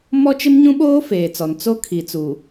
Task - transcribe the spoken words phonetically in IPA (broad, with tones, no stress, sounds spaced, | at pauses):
m ɔ˦ t͡ʃ ɪ˦ m ɲ ũ˦ ɓ oː˦ f eː˨ t͡s ɔ˨ n t͡s o˦ kʰ i˨ t͡s u˨